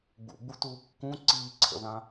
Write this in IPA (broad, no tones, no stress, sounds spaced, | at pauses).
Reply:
ɡ͡b ṵ ɡ͡b u t uː kː ũ ǀ iː ǀʰ ə̰ ð ã